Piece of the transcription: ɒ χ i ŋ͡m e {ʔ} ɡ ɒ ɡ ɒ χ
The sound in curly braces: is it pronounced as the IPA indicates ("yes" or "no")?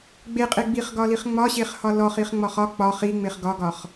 no